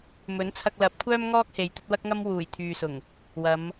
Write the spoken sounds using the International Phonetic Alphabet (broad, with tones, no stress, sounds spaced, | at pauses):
m ɵ˨˥ n t͡sʰ ɐ˧ k̚ l ɐ˨˥ p̚ kʷʰ œː˥ m ŋ ɔː˥ k̚ h e˨˧ j t̪ ɵ˨˥ t̚ w ɐ˥ k̚ ŋ ɐ˥ m w uː˨˩ j t̪ʰ yː˨ s ʊ˨˩ ŋ | w ɐ˨˧ m